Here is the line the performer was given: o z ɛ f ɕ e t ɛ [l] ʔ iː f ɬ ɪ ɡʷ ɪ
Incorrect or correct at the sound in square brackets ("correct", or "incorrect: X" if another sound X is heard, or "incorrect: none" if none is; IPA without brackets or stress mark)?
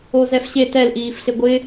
correct